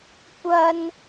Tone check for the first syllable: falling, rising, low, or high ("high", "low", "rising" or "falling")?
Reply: high